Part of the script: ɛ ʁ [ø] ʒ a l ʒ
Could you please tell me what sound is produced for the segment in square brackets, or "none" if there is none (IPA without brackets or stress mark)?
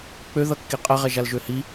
ɛ